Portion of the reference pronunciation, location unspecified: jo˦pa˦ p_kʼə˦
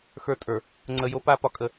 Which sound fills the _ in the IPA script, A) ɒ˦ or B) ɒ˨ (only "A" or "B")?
B